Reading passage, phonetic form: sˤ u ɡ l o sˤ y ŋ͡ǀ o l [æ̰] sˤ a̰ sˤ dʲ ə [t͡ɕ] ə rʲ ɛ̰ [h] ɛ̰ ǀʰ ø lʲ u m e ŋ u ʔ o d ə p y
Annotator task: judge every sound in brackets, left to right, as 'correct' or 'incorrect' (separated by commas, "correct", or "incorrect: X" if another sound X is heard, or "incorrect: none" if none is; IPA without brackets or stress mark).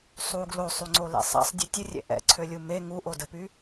incorrect: ɛ̰, incorrect: tʲ, incorrect: ʔ